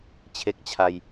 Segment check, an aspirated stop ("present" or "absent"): present